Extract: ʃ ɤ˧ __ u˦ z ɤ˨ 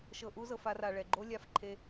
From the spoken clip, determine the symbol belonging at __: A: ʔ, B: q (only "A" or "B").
A